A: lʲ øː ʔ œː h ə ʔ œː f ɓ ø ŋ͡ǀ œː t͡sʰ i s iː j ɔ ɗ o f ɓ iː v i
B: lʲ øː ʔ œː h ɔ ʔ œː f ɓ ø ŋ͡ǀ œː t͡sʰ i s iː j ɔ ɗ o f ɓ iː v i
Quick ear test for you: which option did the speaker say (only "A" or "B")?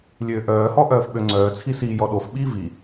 B